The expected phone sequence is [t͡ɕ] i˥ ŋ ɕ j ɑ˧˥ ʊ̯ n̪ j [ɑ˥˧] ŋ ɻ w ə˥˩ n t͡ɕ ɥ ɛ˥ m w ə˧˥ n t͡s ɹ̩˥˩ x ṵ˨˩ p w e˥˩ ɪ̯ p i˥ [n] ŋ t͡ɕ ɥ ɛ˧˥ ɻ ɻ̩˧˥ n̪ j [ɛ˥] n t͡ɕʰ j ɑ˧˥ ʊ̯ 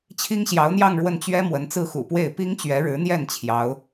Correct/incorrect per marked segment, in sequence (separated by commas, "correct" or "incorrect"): incorrect, correct, incorrect, incorrect